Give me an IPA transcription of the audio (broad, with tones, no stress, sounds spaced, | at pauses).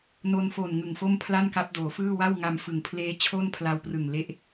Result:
n o˧ n f o˨˩ n ŋ ɯ˨˩ ŋ f o˥˩ m pʰ l a˥˩ n k a˦˥ p̚ d oː˩˦ f ɯː˥˩ w a˥˩ w ŋ a˧ m f ɯ˩˦ ŋ pʰ l eː˦˥ t͡ɕʰ o˥˩ n pʰ l a˧ w p r ɯ˨˩ ŋ l e˦˥ ʔ